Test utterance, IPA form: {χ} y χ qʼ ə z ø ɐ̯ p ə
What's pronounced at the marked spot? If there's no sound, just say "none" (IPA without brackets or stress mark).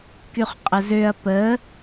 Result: k